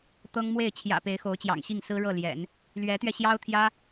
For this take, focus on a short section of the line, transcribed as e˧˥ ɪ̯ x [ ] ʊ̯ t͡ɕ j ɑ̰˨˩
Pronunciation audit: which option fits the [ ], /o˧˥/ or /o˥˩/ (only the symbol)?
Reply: o˧˥